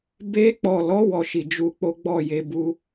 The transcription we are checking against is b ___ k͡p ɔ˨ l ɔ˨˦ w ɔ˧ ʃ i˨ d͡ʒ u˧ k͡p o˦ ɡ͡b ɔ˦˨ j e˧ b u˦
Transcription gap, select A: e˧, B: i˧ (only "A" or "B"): A